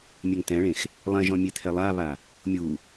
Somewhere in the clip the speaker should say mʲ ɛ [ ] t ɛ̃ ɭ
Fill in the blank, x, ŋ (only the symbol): ŋ